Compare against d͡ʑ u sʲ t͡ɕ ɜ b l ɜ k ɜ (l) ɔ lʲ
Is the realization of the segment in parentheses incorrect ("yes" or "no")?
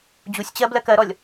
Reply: yes